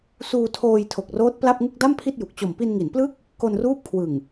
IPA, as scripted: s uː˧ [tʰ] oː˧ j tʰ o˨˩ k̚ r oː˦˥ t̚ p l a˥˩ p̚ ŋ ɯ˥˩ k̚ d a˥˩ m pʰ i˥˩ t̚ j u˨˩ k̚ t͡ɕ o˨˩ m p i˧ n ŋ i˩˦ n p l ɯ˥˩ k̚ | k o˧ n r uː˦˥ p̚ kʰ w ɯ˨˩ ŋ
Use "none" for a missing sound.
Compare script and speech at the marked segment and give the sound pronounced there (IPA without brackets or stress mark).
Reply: tʰ